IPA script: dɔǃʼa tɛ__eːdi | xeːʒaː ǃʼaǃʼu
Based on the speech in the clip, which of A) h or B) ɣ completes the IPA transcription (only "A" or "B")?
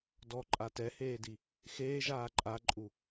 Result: A